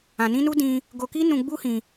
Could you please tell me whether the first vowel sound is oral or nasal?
nasal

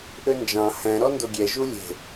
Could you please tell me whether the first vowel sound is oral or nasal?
oral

